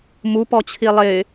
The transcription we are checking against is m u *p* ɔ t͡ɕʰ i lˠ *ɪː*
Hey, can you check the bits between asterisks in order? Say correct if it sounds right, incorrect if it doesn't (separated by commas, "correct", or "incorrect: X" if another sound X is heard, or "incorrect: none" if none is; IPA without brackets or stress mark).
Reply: correct, correct